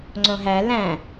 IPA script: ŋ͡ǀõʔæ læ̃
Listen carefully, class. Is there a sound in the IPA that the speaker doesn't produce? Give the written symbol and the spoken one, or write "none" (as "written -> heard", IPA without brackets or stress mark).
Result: ʔ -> ɦ